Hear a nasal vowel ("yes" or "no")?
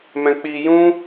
yes